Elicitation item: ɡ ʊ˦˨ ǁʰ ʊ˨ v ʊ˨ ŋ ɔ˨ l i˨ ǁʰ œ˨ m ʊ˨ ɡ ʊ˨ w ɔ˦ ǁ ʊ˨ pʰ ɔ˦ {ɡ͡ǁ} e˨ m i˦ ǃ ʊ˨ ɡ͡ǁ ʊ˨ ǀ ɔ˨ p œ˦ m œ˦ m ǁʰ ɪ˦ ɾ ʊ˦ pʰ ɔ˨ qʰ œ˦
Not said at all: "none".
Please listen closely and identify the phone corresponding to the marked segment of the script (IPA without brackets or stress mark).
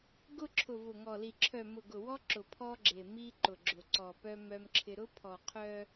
ɡ͡ǁ